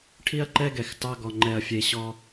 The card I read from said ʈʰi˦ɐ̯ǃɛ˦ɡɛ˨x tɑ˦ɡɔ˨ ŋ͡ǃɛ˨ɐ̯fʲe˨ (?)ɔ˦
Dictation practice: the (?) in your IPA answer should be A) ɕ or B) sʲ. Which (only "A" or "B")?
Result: A